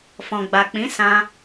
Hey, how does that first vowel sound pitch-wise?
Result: low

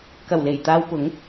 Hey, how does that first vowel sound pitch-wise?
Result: low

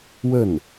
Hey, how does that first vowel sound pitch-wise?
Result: falling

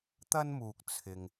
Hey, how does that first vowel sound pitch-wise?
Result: high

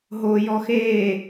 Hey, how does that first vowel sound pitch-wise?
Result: low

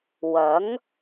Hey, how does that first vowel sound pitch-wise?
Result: rising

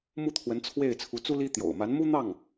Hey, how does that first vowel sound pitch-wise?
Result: falling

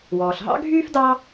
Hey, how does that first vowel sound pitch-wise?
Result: low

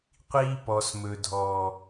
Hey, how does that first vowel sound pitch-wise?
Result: high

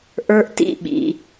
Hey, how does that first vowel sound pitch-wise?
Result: high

